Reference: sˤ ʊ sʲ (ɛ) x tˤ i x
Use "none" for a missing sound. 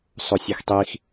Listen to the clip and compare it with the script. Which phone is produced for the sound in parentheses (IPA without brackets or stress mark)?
e